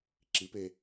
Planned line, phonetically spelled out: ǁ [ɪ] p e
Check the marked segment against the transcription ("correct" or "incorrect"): incorrect